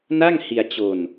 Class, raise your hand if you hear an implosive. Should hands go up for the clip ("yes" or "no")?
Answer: no